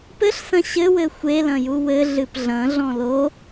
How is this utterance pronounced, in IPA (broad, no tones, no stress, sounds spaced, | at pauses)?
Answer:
p ɘ ɬ s ɐ̃ ɕ ɘ w ɘ xʷ e l ɐ̃ j u w ɘ ɮ ɨ p ɮ ɐ̃ ɮ ɔ̃ l o